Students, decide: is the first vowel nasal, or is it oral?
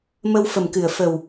oral